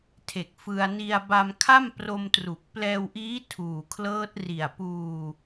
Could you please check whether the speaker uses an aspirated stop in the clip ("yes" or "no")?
yes